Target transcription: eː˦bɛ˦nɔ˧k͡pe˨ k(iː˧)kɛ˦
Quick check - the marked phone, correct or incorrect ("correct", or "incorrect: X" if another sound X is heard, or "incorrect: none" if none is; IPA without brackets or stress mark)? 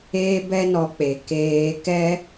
incorrect: eː˧